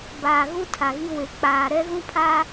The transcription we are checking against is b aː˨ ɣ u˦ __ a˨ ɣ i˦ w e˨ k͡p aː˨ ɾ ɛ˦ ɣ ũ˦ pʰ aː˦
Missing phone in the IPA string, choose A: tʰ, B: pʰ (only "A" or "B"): A